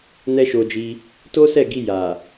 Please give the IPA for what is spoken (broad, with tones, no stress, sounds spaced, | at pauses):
n ɛ˦ ʃ o˧ d͡ʒ i˧ | t o˦ s ɛ˦˨ ɡ i˧ j a˨